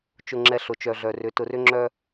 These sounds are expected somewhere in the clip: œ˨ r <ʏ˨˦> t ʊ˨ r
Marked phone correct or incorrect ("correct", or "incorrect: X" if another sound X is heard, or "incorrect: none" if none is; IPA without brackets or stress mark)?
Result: correct